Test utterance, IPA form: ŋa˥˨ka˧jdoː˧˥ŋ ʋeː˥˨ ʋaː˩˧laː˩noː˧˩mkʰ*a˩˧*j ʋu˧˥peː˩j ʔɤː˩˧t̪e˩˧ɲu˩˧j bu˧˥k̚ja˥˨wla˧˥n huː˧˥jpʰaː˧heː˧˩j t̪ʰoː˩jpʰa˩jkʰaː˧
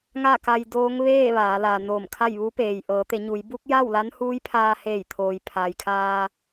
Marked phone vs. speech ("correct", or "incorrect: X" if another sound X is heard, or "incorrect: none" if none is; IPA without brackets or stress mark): incorrect: a˥˨